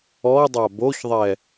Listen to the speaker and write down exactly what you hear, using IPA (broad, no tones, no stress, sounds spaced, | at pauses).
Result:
ɔ dˤ a b o ç ðˤ ɛ